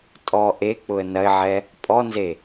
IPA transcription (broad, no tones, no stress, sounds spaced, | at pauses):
tʼ ɔ ʔ e k͡p ʊ ə̯ n ɐ ɪ̯ ʕ ɛ | pʼ ɔ n z e